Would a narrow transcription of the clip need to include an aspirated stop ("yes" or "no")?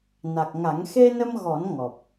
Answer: no